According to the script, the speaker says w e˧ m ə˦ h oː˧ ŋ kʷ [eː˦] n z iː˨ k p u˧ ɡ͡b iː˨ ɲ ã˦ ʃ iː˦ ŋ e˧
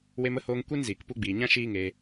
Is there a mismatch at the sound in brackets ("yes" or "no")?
yes